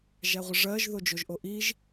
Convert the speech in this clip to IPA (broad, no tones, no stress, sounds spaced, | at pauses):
ʒ æ ʁʷ ə ʐ ɜ ʒ ð o d͡ʒ o ʒ ʔ o ʔ i ʒ